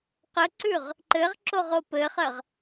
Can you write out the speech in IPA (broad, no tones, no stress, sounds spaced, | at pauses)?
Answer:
q ə ǀ ʉ ʁ | ǃ ɘ ʁ ǁ o ʁ o p ɘ χ ɜ ʁ